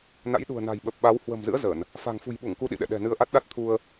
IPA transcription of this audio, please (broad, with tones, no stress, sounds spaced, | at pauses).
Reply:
n a̰˧˥ j ɗ ṳ˨˩ ə̯ n a̤˨˩ j ɓ ə˨˩ p̚ ɓ a˨˦ w h w ə̤˨˩ m z ɨ̰˧˥ ə̯ z ə˧˩˨ n | f a̤˨˩ ŋ f ṳ˨˩ j ɓ u˧˩ ŋ k u˧ ɗ ḭ˧˨ ɗ ɛ̰˧˨ ɗ ɛ̤˨˩ n ɨ˧ ə̯ ʔ a˦˥ t̚ ɗ a˦˥ t̚ t̪ʰ u˧ ə̯